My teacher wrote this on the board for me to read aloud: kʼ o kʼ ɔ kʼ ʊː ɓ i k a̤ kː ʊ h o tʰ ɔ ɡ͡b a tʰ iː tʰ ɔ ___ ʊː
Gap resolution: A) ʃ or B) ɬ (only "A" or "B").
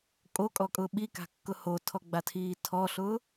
B